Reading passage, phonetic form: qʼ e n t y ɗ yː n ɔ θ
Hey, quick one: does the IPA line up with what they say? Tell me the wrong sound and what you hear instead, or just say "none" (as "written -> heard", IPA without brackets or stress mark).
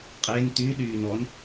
θ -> n